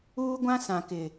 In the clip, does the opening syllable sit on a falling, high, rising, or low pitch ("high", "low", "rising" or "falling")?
high